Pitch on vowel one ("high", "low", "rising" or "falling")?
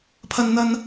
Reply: high